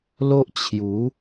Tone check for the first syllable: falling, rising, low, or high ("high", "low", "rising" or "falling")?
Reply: high